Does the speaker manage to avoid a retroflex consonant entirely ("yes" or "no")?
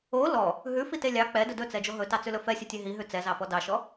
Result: yes